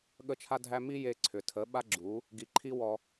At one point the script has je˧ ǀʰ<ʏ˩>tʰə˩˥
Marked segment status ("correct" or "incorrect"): correct